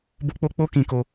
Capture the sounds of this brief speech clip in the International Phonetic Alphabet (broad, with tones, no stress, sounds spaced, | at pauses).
b o˦ k͡p o˦ k͡p o˦ k ĩ˧ k o˧